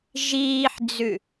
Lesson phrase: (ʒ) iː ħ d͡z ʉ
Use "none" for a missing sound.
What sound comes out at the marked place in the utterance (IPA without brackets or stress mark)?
ʒ